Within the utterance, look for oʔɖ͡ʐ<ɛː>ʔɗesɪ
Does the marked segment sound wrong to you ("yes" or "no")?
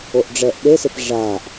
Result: no